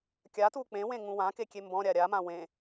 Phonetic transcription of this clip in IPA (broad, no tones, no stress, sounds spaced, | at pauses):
kʲ a t u k͡p ẽ w ẽ ŋ ũ w ã k e kʲ e m b ɔ̃ ɾʲ a ɾʲ a m ã w ẽ